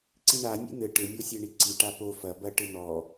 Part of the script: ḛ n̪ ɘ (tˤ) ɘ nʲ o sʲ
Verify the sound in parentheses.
incorrect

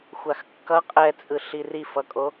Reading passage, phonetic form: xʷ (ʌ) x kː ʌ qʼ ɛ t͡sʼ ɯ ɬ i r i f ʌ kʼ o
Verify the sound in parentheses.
incorrect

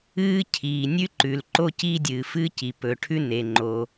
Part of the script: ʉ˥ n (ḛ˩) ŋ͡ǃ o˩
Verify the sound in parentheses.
incorrect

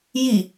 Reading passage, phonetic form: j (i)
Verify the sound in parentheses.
correct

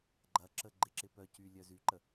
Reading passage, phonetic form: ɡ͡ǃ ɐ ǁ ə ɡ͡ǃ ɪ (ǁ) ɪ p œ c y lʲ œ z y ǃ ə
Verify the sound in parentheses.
correct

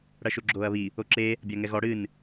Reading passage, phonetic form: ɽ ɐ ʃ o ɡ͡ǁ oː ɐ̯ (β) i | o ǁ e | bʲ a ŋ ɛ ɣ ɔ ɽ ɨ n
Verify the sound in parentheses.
correct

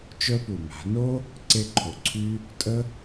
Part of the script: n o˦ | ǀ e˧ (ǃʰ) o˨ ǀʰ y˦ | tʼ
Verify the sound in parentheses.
correct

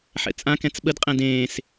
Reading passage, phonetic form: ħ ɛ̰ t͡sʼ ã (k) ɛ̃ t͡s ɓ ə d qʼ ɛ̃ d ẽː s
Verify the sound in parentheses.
correct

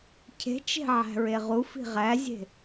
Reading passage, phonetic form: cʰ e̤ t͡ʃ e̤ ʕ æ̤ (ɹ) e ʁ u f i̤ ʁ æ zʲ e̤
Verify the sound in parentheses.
correct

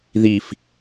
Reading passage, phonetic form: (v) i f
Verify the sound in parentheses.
incorrect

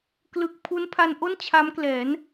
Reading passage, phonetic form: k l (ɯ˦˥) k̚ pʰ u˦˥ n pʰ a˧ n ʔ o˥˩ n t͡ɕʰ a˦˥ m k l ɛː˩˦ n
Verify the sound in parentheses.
incorrect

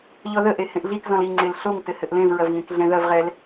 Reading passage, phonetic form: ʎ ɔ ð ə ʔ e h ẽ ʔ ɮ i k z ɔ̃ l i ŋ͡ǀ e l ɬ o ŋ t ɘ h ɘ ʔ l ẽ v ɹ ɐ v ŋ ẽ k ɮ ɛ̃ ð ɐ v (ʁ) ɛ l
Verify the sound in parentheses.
correct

